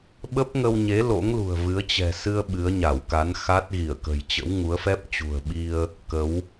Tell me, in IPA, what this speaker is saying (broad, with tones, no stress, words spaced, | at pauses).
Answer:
ɓə˦˥p̚ŋə˧wɲe˨˦ lo̰˧˥ŋlṳ˨˩ə̯vɨ˨˦ə̯ t͡ɕɛ̤˨˩sɨ˧ə̯ ɓɨ˨˦ə̯ɲa˧˩wka˨˦n xa˦˥t̚ɣi˧˩ə̯ kə̤˨˩jt͡ɕə̰˧˥wŋu˨˦ə̯fɛ˦˥p̚ t͡ɕṳ˨˩ə̯ɓi˧ə̯ | kə˨˦w